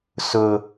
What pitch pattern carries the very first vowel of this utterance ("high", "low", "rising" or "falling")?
high